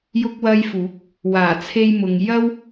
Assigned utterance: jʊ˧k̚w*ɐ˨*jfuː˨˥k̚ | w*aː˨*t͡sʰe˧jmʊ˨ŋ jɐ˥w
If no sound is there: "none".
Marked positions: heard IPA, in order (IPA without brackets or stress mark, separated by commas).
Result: ɐ˧, aː˨˩